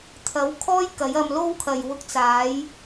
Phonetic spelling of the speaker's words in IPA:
t̪ʰ ɐ˨˥ w kʰ ɔː˥ j k ɐ˨˥ j ɐ˧ m l o˥ w kʰ ɐ˨ j w ʊ˧ k̚ t͡s aː˨˥ j

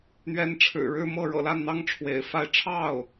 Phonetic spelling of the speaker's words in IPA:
n̪ ɥ ɛ˧˥ n ʈ͡ʂʰ ɻ̩˨˩ ɻ ɻ̩˥˧ m ɤ˥˩ ɻ ɤ̰˨˩ l a˥˩ n n̪ ɑ˥ ŋ ʈ͡ʂʰ w ḛ˨˩ ɪ̯ f a˥˧ ɪ̯ ʈ͡ʂʰ ɑ˥˩ ʊ̯

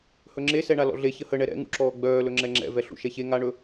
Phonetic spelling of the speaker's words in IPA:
h ɵ ŋ͡ǁ e s ɛ ɳ a l ɔ̰ ɮ e ç ə h ə ɳ ɛ ɾ ɛ̰ ŋ ṵ ǁ ɔː ɡ͡b œː l ɵ ŋ͡ǁ ɛ ŋ͡ǁ ɛ̰ v ɛ ɬ ṵ ʃ ɛ ç e ŋ a ɳ ɵ

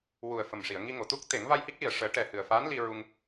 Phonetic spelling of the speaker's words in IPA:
w u˨˩ ə̯ f ə˨˩ m ʂ i˨˩˨ ə̯ ŋ i˧ ŋ o˨˩˨ t̪ u˦˥ k̚ t̪ e˨˩˦ ŋ v a˧ j h i˦˥ k̚ l i˨˩ ə̯ ʂ əː˨˩˦ ʈ ɛ˨˩ h ɨ˨˩ ə̯ f aː˧˥ n l i˧ ɹ u˧ ŋ

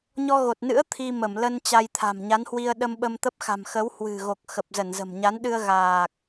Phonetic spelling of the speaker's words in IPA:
ɲ ɔ˧ ɣ o˨˩ t̚ n ɨ̰˧˥ ə̯ t̪ʰ i˧ m ə˧˩ m l ə˧ n t͡ɕ a˧ j t̪ʰ a̤˨˩ m ɲ a˨˦ n h w i˧ ə̯ ɗ ə˧ m ɓ ə˧ m t̪ ə˦˥ p̚ x a̤˨˩ m x ə˨˦ w h w ɨ̤˨˩ ɣ o˨˩ k̚ x ə˨˩ p̚ z ə˧˩ n z ə̤˨˩ m ɲ a˨˦ n ɗ ɨ˧ ə̯ ɣ aː˨˩ k̚

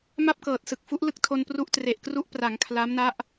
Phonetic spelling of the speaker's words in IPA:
m a˥˩ p̚ k ɤː˨˩ t̚ s ɯ˨˩ k̚ f u˦˥ ʔ l ɯ˦˥ k̚ tʰ o˧ n p r u˦˥ ʔ t r e˨˩ ʔ k r u˦˥ ʔ p r a˩˦ ŋ kʰ l a˦˥ m n a˦˥ ʔ

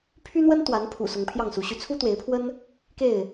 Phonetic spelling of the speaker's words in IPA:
pʰ y˦ n̪ w ə˦ n t̪ w a˨˦ n pʰ ṵ˨˩ s ʊ˨˦ ŋ pʰ j ɑ˥˨ ŋ s u˨˦ ɕ y˨˦ t͡sʰ u˦ t̪ w e˨˦ ɪ̯ pʰ w ə˦ n | k e˥˨ ɪ̯

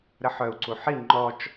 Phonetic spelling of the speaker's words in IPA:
ɾ ə ħ œ u̯ ǀ u ħ i ŋ͡ǃ ɔ t͡ʃ

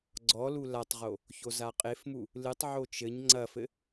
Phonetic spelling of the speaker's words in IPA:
ɡ͡ǀ ɔ l u l a tˤ ʁ o | ç o z a qʼ e f m u | l ɨ tˤ ʕ o t͡ʃ ɘ ɲ ŋ͡ǀ ɐ f ɘ

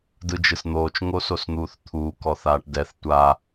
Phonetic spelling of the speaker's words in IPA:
d ɯ d͡ʒ ɯ s n̪ oː t͡ʃ ŋ o s o s n̪ uː θ t̪ʰ uː k ɔ θ aː ʈ d ɛ θ tʷ a

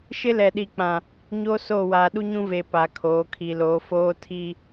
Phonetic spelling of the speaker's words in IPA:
ʃ ɪ˦ l ɛ˨ ɗ i˨ k͡p ã˨ | ɲ o˦ s o˦˨ w aː˨ ɗ u˦ ɲ ũ˦ v e˨ p a˨ kʰ oː˨˦ kʰ i˨ l oː˨˦ f oː˦ tʰ i˦

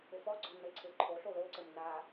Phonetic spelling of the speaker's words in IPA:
ɘ f ɔ ɡ͡ǀ ɔ n ɘ ǀʰ e ǃʰ o ɬ o l o ǀ ɘ m n a

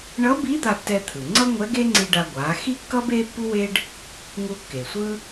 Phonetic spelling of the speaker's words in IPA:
ɳ ʌ˧˥ b i˧˥ d̪ a˧ tː ɛ˧ t̪ʰ ɯ˩ ŋ͡ǀ ʌ˥ ŋʷ ɛ˧˥ ɡ e˥ ŋ͡ǀ i˧ ɖ a˧ ɡʷ a˩˧ x i˥ kː ʌ˥ b e˥ pː u˥ w e˥ ɖ | ŋ u˧ kː e˩ sʷ ɯ˥

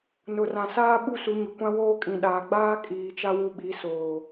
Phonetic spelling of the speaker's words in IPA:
n ʊ˨ r ã˨ s aː˦ ɓ u˦ s u˨˦ ɲ ʊ˨ kʷ ã˦ w oː˦ kʼ ĩ˨ ɗ aː˨ ɡ͡b aː˦ kʼ iː˨ t͡ʃ a˦ w u˦ ɓ i˨˦ s oː˨

